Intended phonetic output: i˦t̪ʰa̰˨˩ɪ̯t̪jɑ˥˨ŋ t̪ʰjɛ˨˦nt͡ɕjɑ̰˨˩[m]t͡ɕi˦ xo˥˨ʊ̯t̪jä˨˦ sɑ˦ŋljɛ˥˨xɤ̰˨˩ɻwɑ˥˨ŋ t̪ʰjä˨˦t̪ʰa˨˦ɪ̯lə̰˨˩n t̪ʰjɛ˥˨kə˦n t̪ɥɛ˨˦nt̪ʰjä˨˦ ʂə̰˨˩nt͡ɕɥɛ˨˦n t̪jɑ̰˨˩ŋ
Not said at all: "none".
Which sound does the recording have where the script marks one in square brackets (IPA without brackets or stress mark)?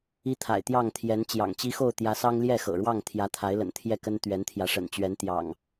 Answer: ŋ